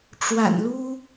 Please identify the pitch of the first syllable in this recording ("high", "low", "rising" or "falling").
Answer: low